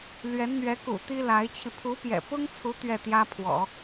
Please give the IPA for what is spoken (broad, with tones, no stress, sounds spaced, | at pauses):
l ɥ ɛ˧˥ n n̪ ɥ ɛ˧˥ k ṵ˨˩ t̪ i˥ l a˧˥ ɪ̯ t͡ɕʰ i˧ pʰ u˧˥ p j ɛ̰˨˩ p ʊ˥ ŋ t͡sʰ u˧˥ t̪ ɥ ɛ˥˩ t̪ j ä˥ pʰ w ɔ̰˨˩˦